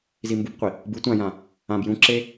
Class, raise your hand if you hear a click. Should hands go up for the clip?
yes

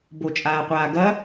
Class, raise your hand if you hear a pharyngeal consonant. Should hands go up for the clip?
no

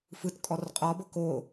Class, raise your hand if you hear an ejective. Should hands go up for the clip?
yes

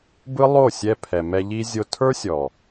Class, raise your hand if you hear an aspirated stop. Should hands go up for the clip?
yes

